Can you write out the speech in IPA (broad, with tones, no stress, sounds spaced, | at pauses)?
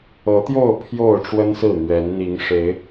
ɤ˨˦ t̪ j o˥˨ ʊ̯ pʰ j o˥˨ ʊ̯ ʈ͡ʂ w ə˦ n s ɹ̩˥˨ n̪ ɥ ɛ˨˦ n n̪ i˨˦ ŋ ʂ e˨˦ ɪ̯